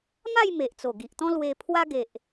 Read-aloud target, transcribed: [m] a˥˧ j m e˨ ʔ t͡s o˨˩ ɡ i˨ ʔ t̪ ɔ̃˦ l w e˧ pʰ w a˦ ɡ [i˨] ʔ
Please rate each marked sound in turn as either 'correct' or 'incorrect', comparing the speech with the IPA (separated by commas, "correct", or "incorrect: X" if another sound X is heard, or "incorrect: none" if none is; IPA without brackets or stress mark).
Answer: correct, incorrect: e˨